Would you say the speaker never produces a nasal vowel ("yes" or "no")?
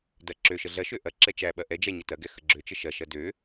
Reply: yes